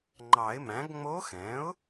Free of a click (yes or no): no